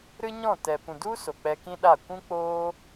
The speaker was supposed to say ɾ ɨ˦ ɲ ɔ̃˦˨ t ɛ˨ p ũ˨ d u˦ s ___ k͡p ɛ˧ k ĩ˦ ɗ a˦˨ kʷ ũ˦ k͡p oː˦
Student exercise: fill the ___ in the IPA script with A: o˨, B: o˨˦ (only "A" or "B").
A